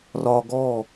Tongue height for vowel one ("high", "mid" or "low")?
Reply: low